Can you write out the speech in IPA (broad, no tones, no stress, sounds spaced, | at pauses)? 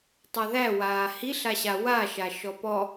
tˤ a ð æ w aː h i ɬ a ɕ a w a ʃ a ʃ ɔ p ɔ